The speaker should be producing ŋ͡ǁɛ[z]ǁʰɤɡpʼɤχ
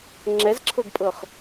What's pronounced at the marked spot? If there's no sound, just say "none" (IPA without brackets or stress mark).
z